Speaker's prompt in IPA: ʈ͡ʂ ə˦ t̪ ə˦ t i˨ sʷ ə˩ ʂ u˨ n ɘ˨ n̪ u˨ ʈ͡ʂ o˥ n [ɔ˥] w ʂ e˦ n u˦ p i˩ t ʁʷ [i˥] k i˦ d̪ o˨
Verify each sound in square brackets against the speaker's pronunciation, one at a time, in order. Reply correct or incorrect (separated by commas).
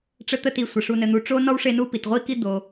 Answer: correct, correct